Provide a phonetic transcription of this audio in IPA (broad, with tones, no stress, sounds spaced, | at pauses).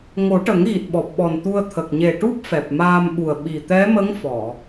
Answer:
ŋ o˨˩˦ ʈ ə˨˩˦ ŋ ɣ i˨˩ t̚ ɓ ɔ˨˩ p̚ ɓ ɔ˨˩ n t̪ u˧ ə̯ t̪ʰ ə˨˩ k̚ ɲ e˨˩ ʈ u˦˥ p̚ f ɛ˨˩ p̚ m aː˧ m ɓ u˨˩ ə̯ ɓ i˨˩ t̪ ɛ˧˥ m ə˧˥ ŋ f ɔ˨˩˨